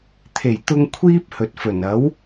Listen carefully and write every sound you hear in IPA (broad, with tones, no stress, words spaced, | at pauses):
t̪ʰe˨˩j t̪ʊ˧ŋ kʷʰiː˥p̚hɵ˨t̚fɵ˨˩n ɐ˨˥w